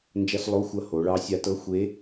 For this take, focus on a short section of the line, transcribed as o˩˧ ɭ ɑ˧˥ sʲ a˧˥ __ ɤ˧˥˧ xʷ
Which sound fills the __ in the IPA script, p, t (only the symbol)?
t